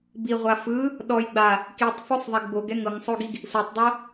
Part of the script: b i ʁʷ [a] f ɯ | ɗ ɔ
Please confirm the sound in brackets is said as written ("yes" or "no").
yes